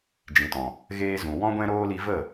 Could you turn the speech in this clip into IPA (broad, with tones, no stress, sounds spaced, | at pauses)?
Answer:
d͡ʒ ĩ˨ t ɔ̃˨ | ɣ eː˧ z ũ˨ w ɔ̃˦ ɡʷ ɛ̃˦ ɾ oː˦ l i˧ v ə˦˨